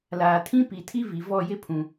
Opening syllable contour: low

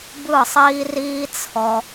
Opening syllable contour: falling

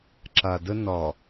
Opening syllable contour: low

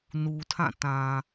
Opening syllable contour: low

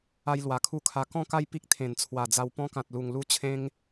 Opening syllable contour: high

